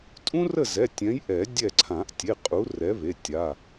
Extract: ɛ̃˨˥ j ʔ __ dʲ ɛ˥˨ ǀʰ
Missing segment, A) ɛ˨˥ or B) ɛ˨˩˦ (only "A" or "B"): B